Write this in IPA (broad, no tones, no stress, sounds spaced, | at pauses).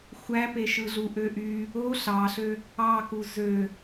xʷ æ p e ʃ ɯ ɮ u ʔ ø ʔ y | o ɬ ɑ ɬ ø | ɑ k u z ø